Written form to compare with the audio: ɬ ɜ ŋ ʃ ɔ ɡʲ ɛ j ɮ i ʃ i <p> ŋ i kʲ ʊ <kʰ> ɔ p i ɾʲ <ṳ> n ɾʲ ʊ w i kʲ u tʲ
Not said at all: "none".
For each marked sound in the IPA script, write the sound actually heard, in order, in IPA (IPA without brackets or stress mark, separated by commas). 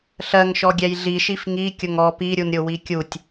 f, ŋ, u